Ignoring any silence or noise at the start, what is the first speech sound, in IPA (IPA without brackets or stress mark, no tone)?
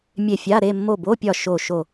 mʲ